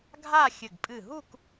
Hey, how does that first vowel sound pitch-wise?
falling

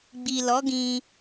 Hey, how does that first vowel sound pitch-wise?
low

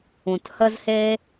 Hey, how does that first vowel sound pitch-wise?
low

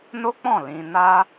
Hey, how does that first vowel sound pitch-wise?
high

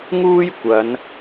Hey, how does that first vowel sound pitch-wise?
high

